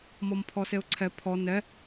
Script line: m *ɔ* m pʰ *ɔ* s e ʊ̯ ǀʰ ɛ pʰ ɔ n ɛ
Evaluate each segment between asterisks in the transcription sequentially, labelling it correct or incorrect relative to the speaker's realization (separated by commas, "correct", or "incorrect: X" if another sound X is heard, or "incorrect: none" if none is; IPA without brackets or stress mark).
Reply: correct, correct